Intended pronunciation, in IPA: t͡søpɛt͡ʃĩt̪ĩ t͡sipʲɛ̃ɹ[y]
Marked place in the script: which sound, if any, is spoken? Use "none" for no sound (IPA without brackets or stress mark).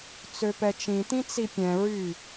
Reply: y